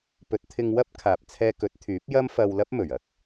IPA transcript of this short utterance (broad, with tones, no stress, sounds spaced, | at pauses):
p ɵ˨˥ t̚ t̪ʰ ɪ˧ ŋ w ɐ˥ p̚ kʰ aː˨ p̚ t͡sʰ ɛː˧ k ɵ˨˥ t̚ t̪ʰ yː˨˥ p̚ j ɐ˥ m f ɐ˧ w l ɐ˥ p̚ m ɵ˨˩ ɥ ɐ˥ k̚